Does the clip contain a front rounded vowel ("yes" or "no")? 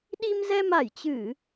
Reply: no